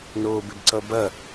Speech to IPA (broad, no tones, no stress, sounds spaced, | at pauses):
n oː b ɪ b ǀ ʌ b ɐ